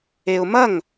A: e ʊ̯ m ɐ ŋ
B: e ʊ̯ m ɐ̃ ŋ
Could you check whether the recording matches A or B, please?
A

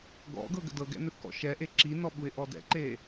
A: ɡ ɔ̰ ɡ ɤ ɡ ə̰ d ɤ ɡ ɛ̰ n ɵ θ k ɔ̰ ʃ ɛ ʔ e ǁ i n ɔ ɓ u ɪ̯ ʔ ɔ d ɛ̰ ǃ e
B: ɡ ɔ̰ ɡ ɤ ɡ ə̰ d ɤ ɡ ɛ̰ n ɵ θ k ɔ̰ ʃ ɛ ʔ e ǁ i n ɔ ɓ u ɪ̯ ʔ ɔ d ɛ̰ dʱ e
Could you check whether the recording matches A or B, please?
A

